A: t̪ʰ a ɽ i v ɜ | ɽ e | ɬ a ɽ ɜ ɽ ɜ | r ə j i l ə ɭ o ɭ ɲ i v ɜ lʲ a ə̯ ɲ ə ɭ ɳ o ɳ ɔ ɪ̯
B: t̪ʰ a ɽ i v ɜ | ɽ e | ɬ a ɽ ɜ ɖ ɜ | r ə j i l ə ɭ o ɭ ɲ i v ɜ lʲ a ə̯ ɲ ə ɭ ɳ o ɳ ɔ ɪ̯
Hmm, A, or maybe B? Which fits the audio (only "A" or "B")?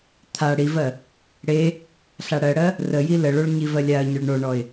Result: A